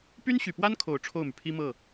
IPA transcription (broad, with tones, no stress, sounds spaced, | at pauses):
p y˥ n ɕ y˨˩ p w a˥ n kʰ o˨˩ ʊ̯ ʈ͡ʂʰ o˥˩ ʊ̯ m y˩ pʰ i˥ m ɤ˥˩